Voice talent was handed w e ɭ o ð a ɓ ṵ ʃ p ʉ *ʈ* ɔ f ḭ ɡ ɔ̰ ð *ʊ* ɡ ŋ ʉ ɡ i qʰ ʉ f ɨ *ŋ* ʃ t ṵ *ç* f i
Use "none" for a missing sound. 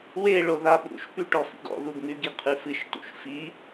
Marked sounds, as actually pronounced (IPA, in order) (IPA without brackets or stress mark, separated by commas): ʈ, u, none, ʃ